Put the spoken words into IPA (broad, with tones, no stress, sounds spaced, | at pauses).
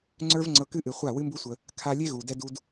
ŋ͡ǀ ə˞˦ v ŋ͡ǀ ɤ˧ k ɨ˦ ʔ ɨ˨ χʷ a˦˨ w ɨ˦ m b u˦ sʷ ə˧ | kʰ a˧ lʲ e˦ ɣ u˨ d ɛ˦ d u˦ d